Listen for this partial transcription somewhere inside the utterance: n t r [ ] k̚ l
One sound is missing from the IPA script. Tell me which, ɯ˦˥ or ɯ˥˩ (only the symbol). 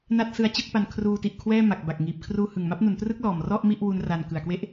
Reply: ɯ˦˥